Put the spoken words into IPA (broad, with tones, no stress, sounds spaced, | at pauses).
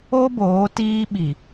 o˦ b oː˨˦ t iː˦ ɓ i˨